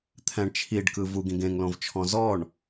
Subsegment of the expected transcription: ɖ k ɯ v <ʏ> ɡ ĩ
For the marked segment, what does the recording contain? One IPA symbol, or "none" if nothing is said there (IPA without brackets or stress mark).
u